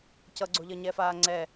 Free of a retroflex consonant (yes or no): yes